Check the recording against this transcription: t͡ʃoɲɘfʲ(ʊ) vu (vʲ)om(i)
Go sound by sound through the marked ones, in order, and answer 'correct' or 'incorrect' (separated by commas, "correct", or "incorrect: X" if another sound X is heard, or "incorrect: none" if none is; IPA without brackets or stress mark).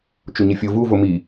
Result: correct, incorrect: v, correct